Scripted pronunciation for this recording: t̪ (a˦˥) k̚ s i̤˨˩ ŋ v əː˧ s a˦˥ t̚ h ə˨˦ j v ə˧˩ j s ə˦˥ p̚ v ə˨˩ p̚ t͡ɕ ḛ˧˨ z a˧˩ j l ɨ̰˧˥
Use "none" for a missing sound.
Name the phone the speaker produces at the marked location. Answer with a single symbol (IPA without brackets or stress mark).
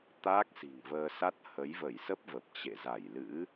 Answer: a˦˥